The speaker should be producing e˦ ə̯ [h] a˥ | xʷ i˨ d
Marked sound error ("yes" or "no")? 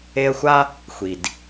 yes